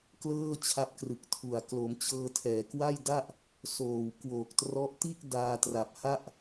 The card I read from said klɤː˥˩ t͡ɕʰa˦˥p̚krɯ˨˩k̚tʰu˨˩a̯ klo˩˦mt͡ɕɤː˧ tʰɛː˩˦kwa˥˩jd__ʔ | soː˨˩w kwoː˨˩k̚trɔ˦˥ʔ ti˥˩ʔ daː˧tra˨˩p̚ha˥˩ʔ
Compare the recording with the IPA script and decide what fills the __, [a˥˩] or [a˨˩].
a˥˩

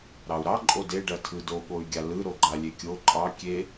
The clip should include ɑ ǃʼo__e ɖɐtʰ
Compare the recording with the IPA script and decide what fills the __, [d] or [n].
d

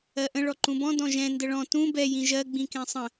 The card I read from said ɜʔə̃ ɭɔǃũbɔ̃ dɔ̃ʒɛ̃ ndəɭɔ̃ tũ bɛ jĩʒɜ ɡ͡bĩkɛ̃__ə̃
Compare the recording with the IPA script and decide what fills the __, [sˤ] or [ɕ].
sˤ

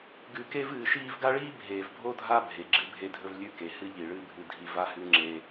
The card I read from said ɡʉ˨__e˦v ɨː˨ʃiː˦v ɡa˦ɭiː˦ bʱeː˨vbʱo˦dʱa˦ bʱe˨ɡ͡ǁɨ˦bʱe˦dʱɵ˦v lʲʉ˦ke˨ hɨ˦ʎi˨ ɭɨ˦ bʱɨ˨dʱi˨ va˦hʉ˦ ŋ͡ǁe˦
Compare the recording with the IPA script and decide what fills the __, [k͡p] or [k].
k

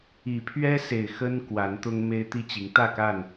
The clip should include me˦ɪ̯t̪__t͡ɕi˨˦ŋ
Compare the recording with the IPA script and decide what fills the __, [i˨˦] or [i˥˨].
i˥˨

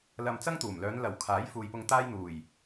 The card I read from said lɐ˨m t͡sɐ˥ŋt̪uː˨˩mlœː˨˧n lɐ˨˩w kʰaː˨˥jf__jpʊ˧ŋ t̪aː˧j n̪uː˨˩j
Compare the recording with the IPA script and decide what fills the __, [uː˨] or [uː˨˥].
uː˨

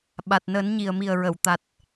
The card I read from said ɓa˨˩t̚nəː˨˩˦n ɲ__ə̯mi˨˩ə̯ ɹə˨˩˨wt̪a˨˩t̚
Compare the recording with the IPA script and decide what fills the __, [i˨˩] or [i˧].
i˨˩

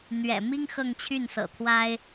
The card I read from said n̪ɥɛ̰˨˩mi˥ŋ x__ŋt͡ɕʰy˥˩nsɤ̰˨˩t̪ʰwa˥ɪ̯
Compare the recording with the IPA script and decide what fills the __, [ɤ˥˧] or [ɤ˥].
ɤ˥˧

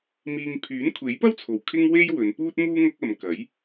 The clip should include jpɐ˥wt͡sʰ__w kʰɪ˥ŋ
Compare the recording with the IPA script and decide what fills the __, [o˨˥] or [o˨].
o˨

